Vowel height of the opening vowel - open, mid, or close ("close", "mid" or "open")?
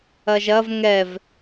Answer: open